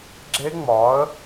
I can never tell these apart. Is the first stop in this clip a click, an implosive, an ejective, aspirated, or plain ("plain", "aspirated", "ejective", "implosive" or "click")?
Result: click